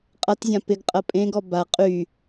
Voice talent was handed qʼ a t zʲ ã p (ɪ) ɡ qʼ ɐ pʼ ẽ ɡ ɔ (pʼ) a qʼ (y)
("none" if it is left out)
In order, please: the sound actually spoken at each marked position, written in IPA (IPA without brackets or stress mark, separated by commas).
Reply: ɪ, b, y